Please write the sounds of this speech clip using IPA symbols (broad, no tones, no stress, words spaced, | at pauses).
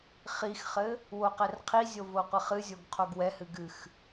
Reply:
χixχɘ | woqɛrqʰizʲo voqʷɘχɨzʲoɡ qʰoɡwɛhɨ ɡɨx